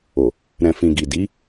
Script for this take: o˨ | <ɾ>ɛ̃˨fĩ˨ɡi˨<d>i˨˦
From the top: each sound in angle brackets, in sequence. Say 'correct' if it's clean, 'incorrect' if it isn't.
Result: correct, correct

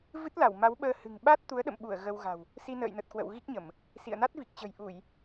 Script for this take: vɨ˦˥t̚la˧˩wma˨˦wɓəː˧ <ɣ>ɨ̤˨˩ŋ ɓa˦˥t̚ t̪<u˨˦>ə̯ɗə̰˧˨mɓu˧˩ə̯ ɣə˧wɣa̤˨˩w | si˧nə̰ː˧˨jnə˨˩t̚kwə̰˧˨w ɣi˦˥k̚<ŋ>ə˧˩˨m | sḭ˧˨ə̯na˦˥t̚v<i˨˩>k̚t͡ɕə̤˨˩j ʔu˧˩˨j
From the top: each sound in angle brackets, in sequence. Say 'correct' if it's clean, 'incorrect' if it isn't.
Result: incorrect: h, correct, incorrect: ɲ, correct

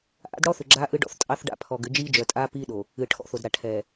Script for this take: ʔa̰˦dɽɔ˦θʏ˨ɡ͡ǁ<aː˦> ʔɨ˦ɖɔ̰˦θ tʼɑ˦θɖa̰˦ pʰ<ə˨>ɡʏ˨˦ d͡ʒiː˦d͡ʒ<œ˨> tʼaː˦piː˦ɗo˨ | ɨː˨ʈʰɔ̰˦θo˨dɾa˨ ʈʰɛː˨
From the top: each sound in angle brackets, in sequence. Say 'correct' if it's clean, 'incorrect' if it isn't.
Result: correct, incorrect: ɔ˨, correct

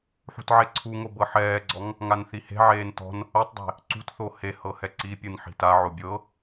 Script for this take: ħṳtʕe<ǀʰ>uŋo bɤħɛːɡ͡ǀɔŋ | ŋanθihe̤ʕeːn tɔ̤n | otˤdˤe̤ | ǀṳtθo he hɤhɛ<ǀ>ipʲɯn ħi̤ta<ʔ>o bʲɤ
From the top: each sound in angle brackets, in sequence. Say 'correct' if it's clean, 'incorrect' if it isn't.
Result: correct, correct, incorrect: ʕ

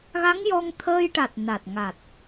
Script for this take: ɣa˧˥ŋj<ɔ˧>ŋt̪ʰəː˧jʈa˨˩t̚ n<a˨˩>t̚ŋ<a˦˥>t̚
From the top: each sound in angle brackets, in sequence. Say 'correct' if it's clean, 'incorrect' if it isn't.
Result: correct, correct, incorrect: a˨˩

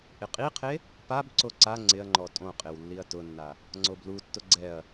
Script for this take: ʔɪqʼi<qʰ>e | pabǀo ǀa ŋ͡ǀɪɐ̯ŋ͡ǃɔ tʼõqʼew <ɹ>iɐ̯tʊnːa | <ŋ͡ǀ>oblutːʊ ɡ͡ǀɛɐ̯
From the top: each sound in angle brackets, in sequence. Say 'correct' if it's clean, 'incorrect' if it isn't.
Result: correct, incorrect: lː, correct

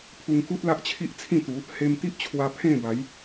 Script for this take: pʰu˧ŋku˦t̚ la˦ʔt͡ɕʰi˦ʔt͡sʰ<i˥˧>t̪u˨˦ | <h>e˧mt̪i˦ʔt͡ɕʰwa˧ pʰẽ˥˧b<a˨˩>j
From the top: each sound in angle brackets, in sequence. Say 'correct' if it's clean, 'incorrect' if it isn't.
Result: incorrect: ĩ˥˧, correct, incorrect: a˨˦

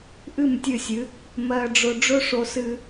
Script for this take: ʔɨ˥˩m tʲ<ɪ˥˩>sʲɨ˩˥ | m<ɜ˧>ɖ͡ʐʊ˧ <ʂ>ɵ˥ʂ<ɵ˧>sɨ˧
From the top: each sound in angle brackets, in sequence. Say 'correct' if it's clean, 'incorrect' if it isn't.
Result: incorrect: ɨ˥˩, correct, incorrect: ɖ͡ʐ, incorrect: o˧

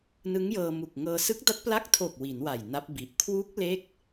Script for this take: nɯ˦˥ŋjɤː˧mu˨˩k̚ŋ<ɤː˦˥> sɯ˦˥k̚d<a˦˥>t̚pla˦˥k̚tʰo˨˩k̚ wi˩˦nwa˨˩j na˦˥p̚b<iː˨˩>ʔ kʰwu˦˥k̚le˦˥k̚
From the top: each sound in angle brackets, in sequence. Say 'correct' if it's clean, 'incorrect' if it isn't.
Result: incorrect: ɤː˧, correct, incorrect: i˨˩

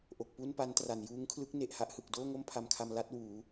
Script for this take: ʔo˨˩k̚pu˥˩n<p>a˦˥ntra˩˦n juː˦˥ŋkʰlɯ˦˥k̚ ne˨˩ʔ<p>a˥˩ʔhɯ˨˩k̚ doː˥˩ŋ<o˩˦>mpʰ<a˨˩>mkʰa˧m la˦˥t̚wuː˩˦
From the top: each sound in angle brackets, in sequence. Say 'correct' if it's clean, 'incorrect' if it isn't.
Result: correct, incorrect: h, incorrect: o˥˩, incorrect: a˧

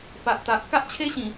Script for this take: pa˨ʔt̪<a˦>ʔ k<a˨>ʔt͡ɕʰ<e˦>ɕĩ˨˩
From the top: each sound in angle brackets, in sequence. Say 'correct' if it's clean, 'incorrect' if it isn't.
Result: incorrect: a˨, incorrect: a˦, correct

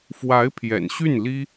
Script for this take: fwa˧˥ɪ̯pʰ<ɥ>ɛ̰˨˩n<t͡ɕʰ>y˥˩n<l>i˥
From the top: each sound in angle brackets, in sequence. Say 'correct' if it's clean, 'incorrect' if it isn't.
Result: incorrect: j, incorrect: ɕ, correct

